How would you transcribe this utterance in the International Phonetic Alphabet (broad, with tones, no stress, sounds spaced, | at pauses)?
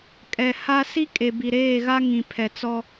kʼ ɛ˨ h a˦ s i˦ kʼ e˨ b i˨ ɾ eː˦˨ ɣ a˦ ŋ ĩ˨ pʰ ɛ˨ t͡s ɔ˦